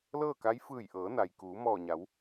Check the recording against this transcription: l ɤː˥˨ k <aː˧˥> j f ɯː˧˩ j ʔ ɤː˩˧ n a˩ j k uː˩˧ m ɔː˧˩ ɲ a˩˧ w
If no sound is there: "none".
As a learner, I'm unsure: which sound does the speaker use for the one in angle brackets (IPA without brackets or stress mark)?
a˧˥